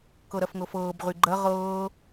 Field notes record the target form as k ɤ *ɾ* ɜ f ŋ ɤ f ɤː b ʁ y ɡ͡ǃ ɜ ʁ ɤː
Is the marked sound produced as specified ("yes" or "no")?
yes